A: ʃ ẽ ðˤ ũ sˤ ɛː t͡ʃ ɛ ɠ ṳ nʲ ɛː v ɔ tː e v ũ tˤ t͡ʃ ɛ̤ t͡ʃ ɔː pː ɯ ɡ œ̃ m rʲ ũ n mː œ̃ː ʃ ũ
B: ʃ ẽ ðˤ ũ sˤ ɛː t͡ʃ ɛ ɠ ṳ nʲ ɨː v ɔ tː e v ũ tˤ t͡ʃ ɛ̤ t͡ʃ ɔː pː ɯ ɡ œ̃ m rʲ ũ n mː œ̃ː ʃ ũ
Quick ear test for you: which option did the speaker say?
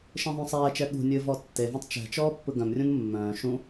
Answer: B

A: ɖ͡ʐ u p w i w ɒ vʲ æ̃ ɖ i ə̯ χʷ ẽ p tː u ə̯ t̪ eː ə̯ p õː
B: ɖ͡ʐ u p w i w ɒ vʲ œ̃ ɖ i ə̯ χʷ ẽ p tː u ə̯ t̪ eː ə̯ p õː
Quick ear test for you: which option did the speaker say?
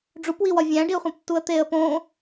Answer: A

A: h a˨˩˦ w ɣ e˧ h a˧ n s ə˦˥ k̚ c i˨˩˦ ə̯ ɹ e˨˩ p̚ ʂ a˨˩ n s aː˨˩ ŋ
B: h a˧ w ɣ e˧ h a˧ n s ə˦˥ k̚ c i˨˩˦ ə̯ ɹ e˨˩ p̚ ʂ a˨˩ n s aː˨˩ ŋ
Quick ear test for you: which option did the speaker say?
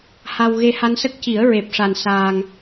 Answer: B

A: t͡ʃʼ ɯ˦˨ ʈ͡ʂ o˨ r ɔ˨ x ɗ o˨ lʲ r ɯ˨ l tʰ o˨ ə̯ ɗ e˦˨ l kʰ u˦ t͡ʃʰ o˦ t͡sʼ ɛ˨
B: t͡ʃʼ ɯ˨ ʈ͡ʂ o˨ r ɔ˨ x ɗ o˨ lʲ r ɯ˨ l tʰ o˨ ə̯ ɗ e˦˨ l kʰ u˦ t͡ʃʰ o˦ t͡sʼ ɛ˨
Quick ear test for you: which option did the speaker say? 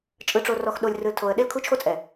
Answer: B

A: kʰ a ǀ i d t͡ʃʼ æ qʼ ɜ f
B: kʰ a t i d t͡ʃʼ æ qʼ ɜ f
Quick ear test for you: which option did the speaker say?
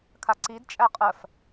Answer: A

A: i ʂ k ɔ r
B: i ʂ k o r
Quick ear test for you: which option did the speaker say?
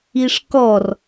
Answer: A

